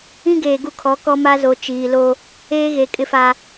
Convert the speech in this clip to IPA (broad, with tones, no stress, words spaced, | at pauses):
ĩ˦ɡeː˨ ɡu˦kʰɔ˨˦kɔ˦ ma˦zo˨ t͡ʃiː˨lo˦ | eː˦ɣe˨ kʼɪ˦fa˦